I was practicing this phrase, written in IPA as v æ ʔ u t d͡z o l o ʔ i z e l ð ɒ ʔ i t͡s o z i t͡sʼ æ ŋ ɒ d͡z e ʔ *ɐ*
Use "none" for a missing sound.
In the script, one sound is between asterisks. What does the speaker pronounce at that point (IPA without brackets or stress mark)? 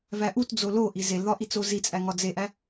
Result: æ